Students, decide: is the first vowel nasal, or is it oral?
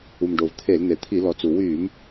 oral